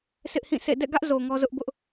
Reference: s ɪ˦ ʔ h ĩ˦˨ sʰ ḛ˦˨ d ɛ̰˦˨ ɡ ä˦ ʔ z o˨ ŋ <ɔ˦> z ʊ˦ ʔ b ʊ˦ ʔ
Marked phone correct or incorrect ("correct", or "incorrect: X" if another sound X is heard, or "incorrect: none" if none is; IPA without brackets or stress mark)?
correct